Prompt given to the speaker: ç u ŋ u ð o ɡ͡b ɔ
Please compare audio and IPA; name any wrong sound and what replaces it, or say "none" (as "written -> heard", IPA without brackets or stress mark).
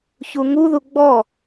o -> u